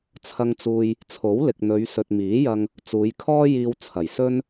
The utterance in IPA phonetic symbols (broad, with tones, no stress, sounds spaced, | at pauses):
t͡sʰ ɐ˧ ŋ t͡s uː˨ j | t͡sʰ o˨˥ w l ɪ˨ k̚ n̪ ɵ˨˧ ɥ s ɵ˨ t̚ m iː˨˥ j ɐ˧ ŋ | t͡s uː˨˧ j kʰ ɔː˥ j iː˧ w t͡sʰ ɐ˨˩ j s ɵ˥ n